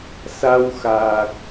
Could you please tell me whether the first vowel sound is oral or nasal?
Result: oral